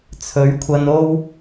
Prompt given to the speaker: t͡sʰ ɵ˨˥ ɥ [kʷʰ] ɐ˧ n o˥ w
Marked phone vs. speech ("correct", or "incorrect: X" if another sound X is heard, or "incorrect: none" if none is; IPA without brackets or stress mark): correct